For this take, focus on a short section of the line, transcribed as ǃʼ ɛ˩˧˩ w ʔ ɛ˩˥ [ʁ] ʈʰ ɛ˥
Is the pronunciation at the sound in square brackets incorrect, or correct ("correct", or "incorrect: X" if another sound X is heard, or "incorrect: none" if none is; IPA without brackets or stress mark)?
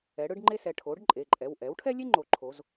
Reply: incorrect: w